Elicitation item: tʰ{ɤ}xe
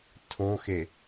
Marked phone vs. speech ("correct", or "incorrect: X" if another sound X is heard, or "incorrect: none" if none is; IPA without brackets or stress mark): incorrect: o